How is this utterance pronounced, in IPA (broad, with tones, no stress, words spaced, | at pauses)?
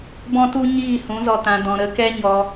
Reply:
bɔ̃˦tu˦ ɲiː˦˨ hũ˨˦zɔ˧tã˧ dɔ̃˧ ɾə˨˦ kɛ˦ɲɔ˧